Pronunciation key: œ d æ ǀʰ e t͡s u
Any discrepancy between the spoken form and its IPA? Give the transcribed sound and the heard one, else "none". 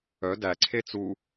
none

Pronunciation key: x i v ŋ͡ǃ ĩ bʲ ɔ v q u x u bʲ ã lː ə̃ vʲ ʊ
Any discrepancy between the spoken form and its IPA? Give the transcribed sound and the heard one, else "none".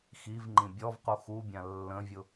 none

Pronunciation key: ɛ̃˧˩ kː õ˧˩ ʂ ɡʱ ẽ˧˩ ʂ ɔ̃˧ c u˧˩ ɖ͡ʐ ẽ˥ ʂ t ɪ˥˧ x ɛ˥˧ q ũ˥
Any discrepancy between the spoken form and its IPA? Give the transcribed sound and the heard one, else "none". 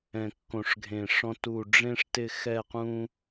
c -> t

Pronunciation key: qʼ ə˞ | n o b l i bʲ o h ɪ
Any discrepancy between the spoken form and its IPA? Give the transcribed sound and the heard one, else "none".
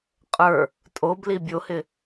n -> tʼ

